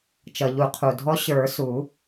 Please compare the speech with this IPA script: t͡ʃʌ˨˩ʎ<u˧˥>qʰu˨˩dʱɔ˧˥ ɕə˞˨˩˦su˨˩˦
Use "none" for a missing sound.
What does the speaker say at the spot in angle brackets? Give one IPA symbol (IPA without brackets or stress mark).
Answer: u˨˩˦